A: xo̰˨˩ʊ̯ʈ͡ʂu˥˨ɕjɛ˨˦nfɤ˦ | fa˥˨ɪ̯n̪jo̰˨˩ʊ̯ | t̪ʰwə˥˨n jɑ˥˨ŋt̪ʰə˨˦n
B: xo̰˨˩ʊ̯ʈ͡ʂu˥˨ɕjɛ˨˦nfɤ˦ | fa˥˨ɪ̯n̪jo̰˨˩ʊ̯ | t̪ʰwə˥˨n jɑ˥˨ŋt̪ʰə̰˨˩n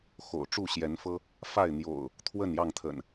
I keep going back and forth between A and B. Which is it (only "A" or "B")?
B